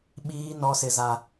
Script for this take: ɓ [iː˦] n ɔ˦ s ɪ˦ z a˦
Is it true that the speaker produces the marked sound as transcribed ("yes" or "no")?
yes